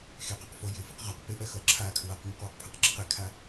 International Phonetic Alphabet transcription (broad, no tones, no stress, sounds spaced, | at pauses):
x e q a q f o j ɪ f ɪ q ʁ a q p ɪ ʔ ɜ x ʌ ǁʰ a kʰ ɹ a q m ʌ q w ʉ q pʰ a q ǁ ɪ q e kʰ a